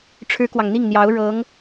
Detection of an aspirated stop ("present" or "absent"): present